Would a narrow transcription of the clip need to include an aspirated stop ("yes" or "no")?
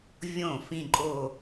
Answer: no